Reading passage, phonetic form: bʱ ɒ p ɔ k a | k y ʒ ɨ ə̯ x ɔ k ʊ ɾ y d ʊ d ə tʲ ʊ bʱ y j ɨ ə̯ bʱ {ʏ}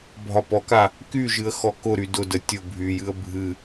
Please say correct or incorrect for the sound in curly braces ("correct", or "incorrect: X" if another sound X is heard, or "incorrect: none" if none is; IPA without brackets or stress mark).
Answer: incorrect: ɨ